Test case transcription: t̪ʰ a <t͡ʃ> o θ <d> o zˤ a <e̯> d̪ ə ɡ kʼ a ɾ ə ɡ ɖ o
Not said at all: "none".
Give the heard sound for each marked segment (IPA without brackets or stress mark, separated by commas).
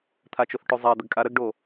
t͡ʃ, ʈ, ɐ̯